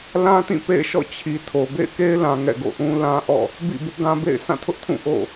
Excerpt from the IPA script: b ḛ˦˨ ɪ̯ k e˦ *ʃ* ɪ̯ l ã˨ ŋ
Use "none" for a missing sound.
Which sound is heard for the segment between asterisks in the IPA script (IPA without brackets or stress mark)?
none